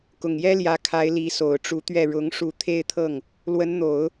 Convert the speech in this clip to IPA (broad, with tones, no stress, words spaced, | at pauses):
kʊ˨˩ŋjɛ˥ljä˧˥kʰa˧˥ɪ̯ li˧˥so˨˩ʊ̯ʈ͡ʂu˧˥t̪ɥɛ˥˩ ɻʊ˧˥ŋ ʂu˧˥ t̪ʰe˥˧ɪ̯t̪ʰɤ˥˩ŋ | lwə˧˥nn̪o˨˩˦ʊ̯